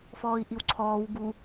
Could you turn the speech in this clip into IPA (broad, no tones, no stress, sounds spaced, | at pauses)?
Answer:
f ɔː i̯ ʔ i w ǀʰ ɔː w ɡ u